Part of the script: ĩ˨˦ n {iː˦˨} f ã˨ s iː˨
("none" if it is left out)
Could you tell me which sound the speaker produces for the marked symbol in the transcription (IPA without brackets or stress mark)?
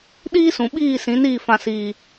iː˦˨